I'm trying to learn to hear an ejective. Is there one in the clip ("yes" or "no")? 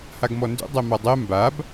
no